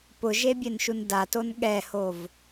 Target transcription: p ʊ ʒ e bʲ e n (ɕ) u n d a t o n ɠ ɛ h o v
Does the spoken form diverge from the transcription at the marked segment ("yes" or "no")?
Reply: yes